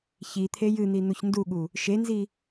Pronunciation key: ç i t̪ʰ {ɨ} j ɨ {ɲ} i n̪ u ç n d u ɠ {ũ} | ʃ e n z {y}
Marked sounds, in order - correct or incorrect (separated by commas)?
incorrect, incorrect, incorrect, incorrect